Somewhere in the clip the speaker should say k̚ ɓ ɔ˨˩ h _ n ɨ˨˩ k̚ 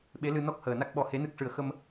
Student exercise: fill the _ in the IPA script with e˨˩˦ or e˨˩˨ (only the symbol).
e˨˩˦